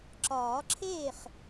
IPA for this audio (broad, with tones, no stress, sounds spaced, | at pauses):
ǁ ɒː˨˩˦ ǁʰ eː˥˩ χ